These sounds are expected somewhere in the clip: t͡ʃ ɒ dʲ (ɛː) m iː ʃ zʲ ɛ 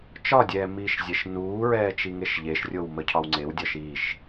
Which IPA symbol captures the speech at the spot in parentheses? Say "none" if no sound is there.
ɛː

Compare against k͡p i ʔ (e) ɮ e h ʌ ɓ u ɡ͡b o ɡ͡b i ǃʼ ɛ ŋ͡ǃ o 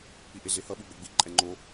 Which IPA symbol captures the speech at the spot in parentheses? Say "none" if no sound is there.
e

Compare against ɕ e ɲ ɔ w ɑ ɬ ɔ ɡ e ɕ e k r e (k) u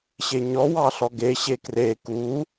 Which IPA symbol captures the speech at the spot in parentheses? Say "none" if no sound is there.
k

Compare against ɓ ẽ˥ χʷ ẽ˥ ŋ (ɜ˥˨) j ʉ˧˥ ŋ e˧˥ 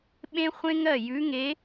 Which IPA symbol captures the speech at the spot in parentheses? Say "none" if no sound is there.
ɜ˥˨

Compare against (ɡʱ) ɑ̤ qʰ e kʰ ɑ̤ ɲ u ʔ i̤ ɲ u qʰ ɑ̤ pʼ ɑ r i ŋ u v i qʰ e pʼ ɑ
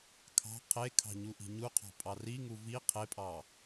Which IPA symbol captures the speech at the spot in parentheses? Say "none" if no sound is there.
kʰ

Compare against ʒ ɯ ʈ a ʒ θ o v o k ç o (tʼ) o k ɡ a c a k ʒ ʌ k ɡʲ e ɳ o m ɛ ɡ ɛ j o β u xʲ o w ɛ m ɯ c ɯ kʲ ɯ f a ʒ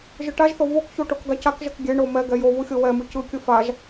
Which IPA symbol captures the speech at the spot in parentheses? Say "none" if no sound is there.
ʈ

